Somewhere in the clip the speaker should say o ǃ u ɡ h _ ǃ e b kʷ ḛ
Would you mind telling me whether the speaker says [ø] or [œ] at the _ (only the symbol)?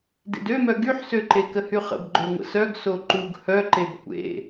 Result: œ